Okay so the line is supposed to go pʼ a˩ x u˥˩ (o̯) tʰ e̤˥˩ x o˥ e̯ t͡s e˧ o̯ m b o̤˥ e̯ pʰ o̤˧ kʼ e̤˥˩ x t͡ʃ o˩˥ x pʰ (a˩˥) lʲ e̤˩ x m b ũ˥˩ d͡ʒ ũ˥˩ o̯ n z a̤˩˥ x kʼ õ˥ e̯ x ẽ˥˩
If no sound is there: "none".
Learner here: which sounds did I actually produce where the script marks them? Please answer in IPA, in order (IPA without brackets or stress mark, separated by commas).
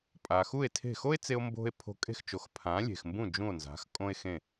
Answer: e̯, ã˩˥